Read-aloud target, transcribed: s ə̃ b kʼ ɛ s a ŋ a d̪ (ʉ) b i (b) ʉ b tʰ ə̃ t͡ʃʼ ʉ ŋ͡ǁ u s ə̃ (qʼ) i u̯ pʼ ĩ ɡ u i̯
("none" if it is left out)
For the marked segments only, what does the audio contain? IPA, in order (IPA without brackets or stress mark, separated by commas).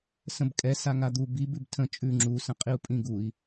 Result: u, b, qʼ